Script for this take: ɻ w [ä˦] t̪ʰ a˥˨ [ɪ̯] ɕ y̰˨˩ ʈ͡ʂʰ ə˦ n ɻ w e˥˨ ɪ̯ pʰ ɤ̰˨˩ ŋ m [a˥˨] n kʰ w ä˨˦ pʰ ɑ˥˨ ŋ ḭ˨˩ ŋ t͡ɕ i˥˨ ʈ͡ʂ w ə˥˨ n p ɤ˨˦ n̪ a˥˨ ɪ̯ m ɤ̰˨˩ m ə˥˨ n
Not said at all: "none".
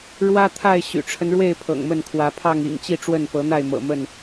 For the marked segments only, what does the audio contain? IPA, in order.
ä˦, ɪ̯, ə˥˨

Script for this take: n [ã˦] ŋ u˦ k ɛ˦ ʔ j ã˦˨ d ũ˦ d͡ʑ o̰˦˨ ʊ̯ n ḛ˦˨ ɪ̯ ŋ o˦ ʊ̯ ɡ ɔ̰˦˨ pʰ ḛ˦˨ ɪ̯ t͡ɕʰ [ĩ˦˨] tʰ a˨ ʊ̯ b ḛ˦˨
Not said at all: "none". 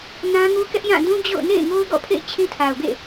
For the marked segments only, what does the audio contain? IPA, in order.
ã˦, ĩ˦

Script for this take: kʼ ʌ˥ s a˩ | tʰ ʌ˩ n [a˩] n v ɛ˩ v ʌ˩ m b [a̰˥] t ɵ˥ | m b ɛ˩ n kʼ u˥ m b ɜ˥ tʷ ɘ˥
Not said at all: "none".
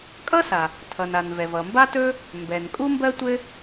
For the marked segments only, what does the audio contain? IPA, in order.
a˩, a˥

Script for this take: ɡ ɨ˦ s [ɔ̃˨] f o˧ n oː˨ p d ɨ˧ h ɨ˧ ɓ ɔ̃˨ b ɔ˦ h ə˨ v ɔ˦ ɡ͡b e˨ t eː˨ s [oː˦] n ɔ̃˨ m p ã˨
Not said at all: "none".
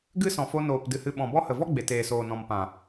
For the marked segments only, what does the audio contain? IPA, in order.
ɔ̃˨, oː˨

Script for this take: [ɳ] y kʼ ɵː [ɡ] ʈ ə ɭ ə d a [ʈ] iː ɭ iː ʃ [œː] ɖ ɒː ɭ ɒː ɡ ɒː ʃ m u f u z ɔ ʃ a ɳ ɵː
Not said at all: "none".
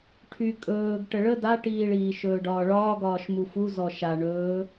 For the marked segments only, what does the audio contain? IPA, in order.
ʈʰ, ɡ, ʈ, ɵː

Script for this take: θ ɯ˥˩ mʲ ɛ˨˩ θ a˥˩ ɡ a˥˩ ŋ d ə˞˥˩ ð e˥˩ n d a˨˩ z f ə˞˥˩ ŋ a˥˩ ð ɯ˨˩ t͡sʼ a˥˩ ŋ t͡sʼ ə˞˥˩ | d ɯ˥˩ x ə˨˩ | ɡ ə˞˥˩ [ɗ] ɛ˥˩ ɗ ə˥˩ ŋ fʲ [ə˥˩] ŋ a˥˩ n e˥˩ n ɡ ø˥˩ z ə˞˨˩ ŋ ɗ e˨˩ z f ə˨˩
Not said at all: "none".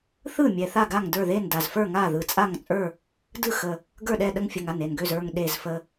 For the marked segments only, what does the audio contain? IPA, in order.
ɗ, ə˨˩

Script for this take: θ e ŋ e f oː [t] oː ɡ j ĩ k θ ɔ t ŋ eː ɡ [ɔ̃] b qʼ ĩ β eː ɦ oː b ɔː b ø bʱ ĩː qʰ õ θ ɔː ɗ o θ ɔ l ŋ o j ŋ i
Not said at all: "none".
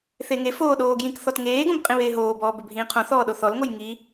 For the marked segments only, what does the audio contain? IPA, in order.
ɗ, õ

